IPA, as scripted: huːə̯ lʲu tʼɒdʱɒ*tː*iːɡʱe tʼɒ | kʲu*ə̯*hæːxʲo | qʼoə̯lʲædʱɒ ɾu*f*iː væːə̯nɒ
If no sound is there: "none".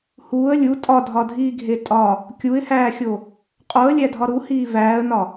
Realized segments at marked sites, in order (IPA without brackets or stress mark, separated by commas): dʱ, ɪ̯, h